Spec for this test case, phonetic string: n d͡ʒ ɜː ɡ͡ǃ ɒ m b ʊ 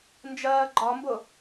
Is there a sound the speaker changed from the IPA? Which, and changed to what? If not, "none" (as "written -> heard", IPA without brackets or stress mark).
none